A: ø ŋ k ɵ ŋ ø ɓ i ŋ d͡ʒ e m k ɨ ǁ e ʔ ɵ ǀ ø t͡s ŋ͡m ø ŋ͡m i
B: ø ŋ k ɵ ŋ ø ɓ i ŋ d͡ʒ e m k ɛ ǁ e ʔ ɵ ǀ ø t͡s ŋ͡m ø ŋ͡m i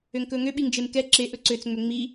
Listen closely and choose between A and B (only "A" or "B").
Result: B